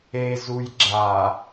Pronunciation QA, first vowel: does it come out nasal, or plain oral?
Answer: oral